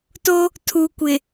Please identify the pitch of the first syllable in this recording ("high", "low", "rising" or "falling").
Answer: high